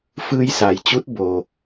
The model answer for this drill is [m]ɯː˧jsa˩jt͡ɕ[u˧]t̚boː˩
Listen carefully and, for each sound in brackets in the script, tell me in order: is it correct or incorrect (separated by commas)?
incorrect, incorrect